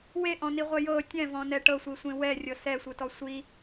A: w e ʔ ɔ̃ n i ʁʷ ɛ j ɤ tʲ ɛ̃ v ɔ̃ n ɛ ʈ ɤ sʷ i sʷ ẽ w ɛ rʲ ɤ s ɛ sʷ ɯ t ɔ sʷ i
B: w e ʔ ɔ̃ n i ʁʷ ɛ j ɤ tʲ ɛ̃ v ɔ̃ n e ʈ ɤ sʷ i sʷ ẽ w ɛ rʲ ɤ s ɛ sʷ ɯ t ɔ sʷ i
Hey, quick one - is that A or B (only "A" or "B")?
A